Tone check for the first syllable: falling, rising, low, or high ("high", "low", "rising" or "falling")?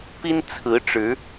high